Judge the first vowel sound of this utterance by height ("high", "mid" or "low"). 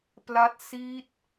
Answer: low